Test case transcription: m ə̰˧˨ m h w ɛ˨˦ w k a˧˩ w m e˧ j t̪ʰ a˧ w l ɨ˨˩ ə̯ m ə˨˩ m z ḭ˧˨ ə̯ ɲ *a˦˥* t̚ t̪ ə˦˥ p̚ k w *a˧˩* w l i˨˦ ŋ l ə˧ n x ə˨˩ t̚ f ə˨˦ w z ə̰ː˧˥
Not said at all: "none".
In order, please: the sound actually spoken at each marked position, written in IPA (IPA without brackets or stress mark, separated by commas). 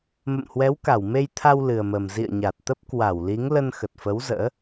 a˨˩, a˧˩